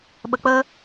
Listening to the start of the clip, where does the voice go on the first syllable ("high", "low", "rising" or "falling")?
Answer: low